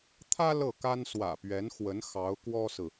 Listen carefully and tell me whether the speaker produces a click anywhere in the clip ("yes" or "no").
no